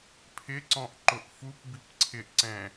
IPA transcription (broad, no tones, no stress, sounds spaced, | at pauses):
pʰ ɪ ǀ ɔ̃ ʔ ǃ ʊ ʔ f u p b i p ǀʰ ɪ ʔ ǀ ɛ̃